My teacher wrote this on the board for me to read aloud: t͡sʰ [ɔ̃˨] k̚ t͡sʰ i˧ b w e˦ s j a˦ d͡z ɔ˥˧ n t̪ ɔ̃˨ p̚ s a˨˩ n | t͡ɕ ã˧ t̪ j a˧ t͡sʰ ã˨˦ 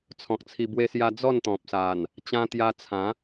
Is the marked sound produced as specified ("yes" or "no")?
yes